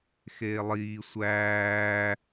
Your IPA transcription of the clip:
x eː lˠ iː sʷ æː

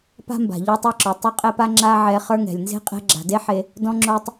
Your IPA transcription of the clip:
p a̤˥ m b a̤˩ ʎ ɔ˦ tˤ ɛ˦ ǁ o˩ tˤ o˥ qʼ ɛ˥ p a˥ ŋ͡ǁ a˦ ʕ ɛ˨ χ ə˞˥ ŋ ɛ̤˩ lʲ n z e̤˥ qʼ ɛ̤˦ ɡ͡ǁ a̤˩ d e˥ ħ e˨ | d ɔ̃˥ ŋ͡ǁ o˦ tˤ

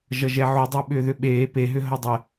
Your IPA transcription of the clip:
ʒ ʌ ʒ ɛ ʕ u dˤ e ɓ ʏː ð ʏ ɓ eː p e ɦ ʏ ɦ ʌ dˤ ə

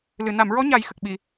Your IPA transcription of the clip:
l ɨ˨˩˨ n a˨˩˨ m ɹ ɔ˧˥ ɲ a˨˩˦ j x ə˨˩ k̚ ɓ i˨˩˨

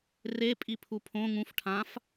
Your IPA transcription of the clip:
r e pʼ i pʰ u pʰ õ ŋ ũ f ʈʰ ã f

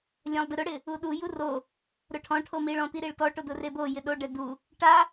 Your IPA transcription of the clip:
lʲ ã lˠ d ɪ ɾ ʊ ɽ ɪ | u ɗ u j u r o | ɾ ʊ ʈʰ ɔ̃ ʈʰ o m i ɭ ɔ̃ t i ɾ i ɭ t ɔ ʈ o d ʊ r e b o j ɪ ɗ o ɖ ɛ d u | ʈ a

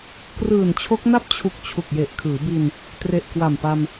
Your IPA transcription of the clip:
k r ɯː˨˩ n t͡ɕʰ o˦˥ k̚ n a˥˩ p̚ t͡ɕʰ u˨˩ k̚ t͡ɕʰ u˨˩ k̚ j e˨˩ ʔ kʰ ɯː˩˦ b i˧ n | t r e˨˩ ʔ k w a˨˩ m p a˧ m

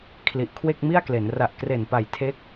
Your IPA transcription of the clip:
kʰ l i˨˩ ʔ kʰ w e˥˩ k̚ m i˥˩ a̯ k l e˩˦ n r a˨˩ ʔ k r e˨˩ n p a˨˩ j tʰ e˦˥ k̚

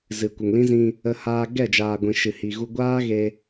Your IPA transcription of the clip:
z ɨ˨ kʷ ə˨ ŋ l ĩ˦ z ĩ˧ | ə˧ h aː˧ ɡ ɛ˦˨ d͡ʒ aː˨ ɡʷ ĩ˨ ʃ ɨ˨ h i˨ ɣ u˧ ɡʷ aː˦ ɣ e˧

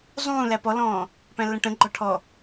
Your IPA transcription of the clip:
zˤ ũː l æ p ɔ l ɔ̃ː | p æ̃ lː ə̃ ʈ ə̃ ɡ͡ǃ ɔ ʈʰ ɔ

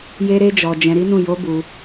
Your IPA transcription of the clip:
j e˧ ɾ e˧ d͡ʒ ɔ˨ d͡ʒ ɛ̃˧ ɾ i˦ n ũ˦˨ j o˨˦ b u˧

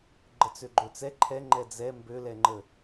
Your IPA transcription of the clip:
ɡ͡ǃ ə t͡s ø ɡ͡ǃ ø t͡s ɛ ǃʰ ɛ ŋ͡ǃ ɛ d͡z ɛ m b ø l ɛ ŋ͡ǃ ə

